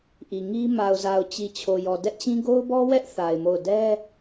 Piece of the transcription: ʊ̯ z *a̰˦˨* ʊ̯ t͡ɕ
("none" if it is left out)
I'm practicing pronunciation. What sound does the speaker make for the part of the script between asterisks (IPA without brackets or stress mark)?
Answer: a˨